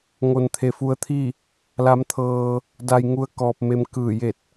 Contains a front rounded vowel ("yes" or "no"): no